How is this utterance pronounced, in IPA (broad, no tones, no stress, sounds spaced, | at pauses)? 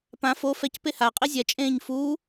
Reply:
p ã f o f ɛ c p e h a qʼ i zʲ ɛ t͡ʃʼ ẽː ɲ f uː